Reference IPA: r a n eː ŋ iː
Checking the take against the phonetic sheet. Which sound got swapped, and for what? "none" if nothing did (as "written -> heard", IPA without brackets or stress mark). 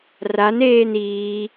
ŋ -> n